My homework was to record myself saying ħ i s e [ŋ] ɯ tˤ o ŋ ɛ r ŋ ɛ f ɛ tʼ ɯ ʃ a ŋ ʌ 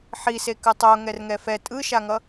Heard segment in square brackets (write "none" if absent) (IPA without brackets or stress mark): k